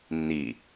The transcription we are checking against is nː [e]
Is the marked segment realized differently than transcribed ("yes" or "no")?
yes